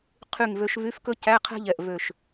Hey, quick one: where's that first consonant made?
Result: uvula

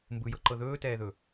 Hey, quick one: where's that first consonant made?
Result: lips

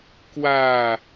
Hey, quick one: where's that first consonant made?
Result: velum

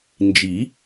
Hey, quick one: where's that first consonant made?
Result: tongue tip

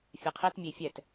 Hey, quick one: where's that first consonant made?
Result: lips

